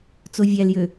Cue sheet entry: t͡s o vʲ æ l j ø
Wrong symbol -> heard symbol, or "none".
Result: none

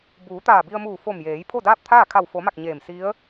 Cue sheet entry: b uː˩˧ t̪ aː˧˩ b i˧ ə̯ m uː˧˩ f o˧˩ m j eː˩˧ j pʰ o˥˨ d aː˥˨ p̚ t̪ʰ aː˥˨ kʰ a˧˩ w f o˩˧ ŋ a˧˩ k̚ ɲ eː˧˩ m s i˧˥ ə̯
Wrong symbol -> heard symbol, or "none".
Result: ŋ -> m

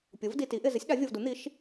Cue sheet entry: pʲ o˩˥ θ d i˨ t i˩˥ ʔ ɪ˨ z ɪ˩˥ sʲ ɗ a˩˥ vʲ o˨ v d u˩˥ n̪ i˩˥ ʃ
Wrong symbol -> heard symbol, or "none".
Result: θ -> v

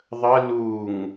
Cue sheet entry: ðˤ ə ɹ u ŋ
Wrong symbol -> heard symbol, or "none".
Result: ɹ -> l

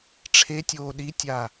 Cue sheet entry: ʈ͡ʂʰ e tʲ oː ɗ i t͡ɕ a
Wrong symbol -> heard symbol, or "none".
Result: t͡ɕ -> tʲ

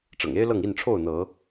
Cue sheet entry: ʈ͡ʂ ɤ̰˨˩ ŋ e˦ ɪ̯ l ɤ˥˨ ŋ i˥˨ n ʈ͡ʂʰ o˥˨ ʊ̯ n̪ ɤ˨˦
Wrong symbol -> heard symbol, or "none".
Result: none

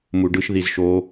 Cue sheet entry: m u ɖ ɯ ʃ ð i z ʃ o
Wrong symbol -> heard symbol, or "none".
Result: none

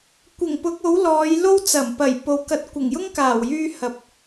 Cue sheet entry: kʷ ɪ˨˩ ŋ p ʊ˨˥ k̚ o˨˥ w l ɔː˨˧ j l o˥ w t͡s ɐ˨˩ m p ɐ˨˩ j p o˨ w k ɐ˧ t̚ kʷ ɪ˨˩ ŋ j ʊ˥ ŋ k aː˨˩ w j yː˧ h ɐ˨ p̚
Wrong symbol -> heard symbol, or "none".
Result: none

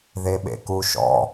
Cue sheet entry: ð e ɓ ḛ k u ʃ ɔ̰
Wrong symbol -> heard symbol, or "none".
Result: none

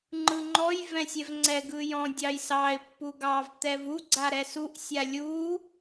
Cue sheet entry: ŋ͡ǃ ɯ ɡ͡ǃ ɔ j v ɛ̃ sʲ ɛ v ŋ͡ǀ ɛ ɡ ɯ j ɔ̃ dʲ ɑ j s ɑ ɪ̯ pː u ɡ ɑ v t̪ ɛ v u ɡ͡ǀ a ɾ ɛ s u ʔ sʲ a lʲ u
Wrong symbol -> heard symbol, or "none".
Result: ɡ͡ǃ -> ŋ͡ǃ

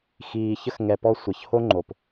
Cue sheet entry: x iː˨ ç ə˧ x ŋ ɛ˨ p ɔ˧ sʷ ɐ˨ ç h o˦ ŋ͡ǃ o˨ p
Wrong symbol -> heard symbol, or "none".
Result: none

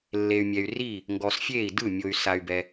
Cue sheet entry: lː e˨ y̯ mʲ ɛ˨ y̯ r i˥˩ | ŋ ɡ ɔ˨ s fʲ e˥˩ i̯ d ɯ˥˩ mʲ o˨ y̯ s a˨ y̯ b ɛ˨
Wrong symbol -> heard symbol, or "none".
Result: none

